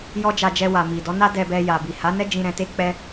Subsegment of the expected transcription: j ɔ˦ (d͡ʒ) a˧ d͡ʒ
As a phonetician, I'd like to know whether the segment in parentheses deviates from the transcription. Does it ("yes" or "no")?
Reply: no